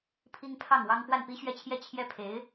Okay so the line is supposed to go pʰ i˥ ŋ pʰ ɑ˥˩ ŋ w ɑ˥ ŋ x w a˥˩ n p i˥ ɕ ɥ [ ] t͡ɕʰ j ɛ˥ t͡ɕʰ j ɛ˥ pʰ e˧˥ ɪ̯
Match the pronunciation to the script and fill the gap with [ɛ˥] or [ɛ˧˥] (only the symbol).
ɛ˥